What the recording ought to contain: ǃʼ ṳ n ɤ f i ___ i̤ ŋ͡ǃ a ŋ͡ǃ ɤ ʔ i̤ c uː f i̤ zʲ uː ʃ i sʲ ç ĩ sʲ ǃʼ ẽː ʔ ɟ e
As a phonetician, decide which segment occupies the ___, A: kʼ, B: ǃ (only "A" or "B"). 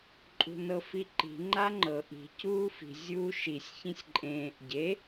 B